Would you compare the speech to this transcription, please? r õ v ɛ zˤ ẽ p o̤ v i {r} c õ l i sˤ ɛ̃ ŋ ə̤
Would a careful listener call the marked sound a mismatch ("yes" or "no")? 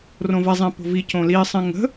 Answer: yes